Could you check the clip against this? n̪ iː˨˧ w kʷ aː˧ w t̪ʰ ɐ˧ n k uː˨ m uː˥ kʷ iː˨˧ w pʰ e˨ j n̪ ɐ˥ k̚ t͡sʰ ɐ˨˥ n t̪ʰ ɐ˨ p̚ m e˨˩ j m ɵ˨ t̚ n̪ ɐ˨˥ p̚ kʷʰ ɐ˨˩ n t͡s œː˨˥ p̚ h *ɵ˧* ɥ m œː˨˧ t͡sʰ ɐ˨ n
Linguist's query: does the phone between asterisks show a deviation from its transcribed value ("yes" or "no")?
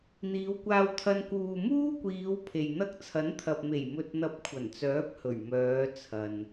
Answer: yes